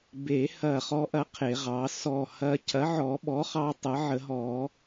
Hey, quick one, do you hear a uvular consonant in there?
yes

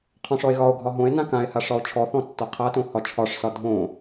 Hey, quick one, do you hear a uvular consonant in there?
yes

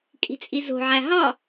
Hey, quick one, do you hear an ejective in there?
yes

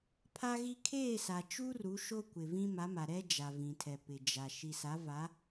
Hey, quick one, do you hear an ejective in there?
no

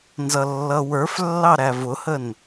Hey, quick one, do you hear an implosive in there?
no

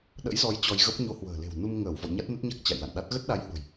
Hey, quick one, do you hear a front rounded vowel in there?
no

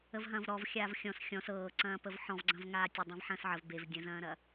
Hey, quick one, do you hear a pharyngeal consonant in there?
yes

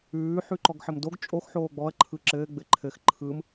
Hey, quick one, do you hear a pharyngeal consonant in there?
yes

